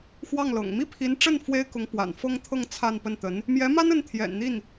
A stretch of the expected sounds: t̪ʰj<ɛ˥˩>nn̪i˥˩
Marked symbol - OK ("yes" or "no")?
no